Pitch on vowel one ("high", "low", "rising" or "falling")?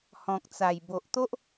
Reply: low